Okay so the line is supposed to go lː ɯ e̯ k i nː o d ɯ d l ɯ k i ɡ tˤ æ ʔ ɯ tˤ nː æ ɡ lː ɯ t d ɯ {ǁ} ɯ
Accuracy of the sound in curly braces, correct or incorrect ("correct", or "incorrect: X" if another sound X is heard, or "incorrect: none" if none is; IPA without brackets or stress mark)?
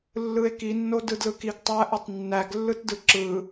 correct